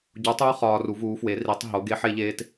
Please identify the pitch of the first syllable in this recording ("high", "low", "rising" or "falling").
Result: rising